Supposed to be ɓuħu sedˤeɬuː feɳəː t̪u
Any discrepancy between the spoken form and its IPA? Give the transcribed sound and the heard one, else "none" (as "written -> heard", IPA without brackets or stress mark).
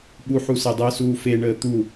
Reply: ɬ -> s